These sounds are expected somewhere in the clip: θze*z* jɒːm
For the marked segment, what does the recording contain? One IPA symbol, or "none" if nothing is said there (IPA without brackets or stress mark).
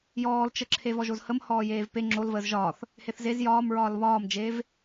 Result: z